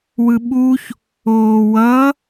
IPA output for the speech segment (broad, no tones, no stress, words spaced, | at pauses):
wɯɓuç | oːwʌ